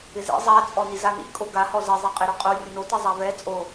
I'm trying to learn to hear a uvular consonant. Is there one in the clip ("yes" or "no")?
yes